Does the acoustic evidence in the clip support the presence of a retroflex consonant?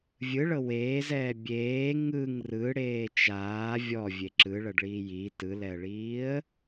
yes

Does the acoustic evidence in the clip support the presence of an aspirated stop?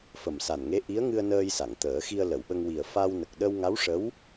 no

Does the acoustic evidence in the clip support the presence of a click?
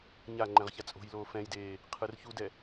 yes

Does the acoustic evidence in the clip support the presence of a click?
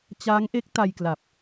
no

